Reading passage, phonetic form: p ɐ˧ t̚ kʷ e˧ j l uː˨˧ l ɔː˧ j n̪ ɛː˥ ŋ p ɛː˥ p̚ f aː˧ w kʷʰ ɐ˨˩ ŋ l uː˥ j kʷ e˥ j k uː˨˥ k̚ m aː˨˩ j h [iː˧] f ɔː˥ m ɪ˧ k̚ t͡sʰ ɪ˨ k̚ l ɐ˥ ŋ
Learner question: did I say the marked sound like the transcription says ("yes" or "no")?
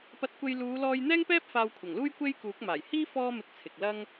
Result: no